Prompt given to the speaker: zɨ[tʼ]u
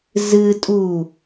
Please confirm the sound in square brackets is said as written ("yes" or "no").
yes